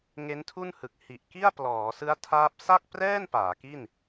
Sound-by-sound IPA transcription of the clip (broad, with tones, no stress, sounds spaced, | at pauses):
ŋ e˦˥ n tʰ u˥˩ n h ɯ˨˩ k̚ h i˨˩ ʔ k i˥˩ a̯ p l ɔː˩˦ s ɯ˦˥ a̯ tʰ aː˦˥ p̚ s a˥˩ k̚ p r ɛː˥˩ n p aː˩˦ k i˥˩ n